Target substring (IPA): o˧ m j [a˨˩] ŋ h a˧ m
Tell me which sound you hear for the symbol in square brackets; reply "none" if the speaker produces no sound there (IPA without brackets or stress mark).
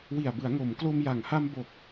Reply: a˨˩